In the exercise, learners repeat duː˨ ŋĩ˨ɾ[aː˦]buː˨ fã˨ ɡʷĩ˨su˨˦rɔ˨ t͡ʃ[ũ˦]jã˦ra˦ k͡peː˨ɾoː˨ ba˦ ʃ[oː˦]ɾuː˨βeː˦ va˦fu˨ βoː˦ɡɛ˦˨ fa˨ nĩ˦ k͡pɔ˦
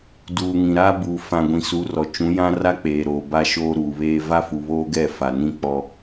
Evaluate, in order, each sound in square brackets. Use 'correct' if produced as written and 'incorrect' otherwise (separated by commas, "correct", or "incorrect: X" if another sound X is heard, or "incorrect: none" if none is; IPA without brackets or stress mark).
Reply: correct, incorrect: ũ˨˦, correct